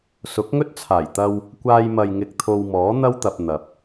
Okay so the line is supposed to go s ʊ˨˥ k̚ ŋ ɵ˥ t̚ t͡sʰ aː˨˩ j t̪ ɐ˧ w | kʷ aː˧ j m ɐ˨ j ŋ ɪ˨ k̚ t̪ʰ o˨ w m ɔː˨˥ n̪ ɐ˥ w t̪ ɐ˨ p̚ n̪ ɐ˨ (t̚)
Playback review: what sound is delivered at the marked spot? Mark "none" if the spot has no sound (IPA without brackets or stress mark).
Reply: p̚